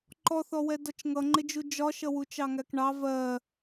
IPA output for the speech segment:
ǃ ɔ θ ɔ w ɛ d ɒ t͡ʃ ŋ ʌ ŋ͡ǃ ɪ d͡ʒ u d͡ʒ ɒ ʃ ʌ w u t͡ʃ ɑ ŋ æ k ɳ ɑ v ɜ

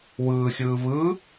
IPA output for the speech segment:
w ɯː xʲ ɯː β ɯ

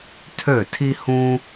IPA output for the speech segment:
tʰ ø˥˩ tʰ i˥ h ũ˥

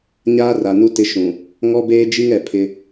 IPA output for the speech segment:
ɲ aː˦ r a˨ n u˦ t ɪ˦ ʃ ũ˨ | ŋ ɔ˦ b eː˦ d͡ʒ i˦ ŋ ɛ˨ pʰ ɪ˦

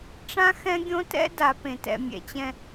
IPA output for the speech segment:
ʈ͡ʂ ã˦ x ɛ̃˦ ɡʲ õ˦ t ɛ̰˦ d a˨ p ẽ˨ t ɛ̰˨ mʲ ɛ̰˨ t͡ɕ ɛ̃˦

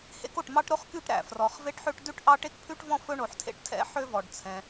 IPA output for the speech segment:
h ḛ˥ k o˩ ʈ m ɑ˥ ʈ ɾ o˥ χ k y˥ ʈ ɾ æ̰˩ f r ɔ˩ χ v e˥ ʈ ħ ø˥ ʈ d ʉ˥ ʈ ʔ ɑ˥ ʈ e˥ k pʰ ʉ˥ ʈ v ɔ̃˥ f ɵ˥ ɳ o˩ ħ tʰ ḛ˥ ʈ tʰ ɛ̰˥ ħ ø˥ v ɔ˩ ɖ t͡sʰ ɛ̃˩

